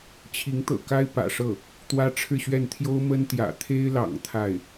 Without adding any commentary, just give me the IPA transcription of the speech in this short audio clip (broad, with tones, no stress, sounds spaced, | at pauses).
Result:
t͡ɕʰ i˧˥ ŋ t̪ ɤ̰˨˩ k a˥ ɪ̯ p ä̰˨˩ ʂ ɤ˥˩ | t̪ w ä˥ ʈ͡ʂʰ ɻ̩˥˧ ɕ ɥ ɛ˥˩ n t̪ʰ j o˥ ʊ̯ m ə˥ n t̪ j ä̰˨˩ t̪ʰ e˥ ɪ̯ l ɑ̰˨˩ ŋ t̪ʰ a˥˩ ɪ̯